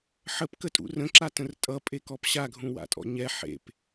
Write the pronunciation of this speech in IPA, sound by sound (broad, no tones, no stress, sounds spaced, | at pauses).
ħ ə p k ə tʼ ṵ r ə̃ ǁ a t ə̃ r tʼ ʌ pʼ e k ɔ p ɕ a ɡʱ ũ w a̰ tʼ ɔ̰ ɲ ɛ ħ ḛ p